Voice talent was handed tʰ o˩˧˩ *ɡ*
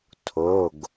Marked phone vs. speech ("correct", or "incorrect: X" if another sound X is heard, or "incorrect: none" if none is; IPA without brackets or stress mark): correct